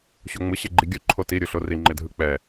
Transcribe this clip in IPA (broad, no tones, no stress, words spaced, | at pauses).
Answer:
ɕoŋ͡mɯ ɕeɡ͡ǃiɡʲu ǃʰoti ɾʲuɬori ŋ͡ǃedʱɯk͡pɛ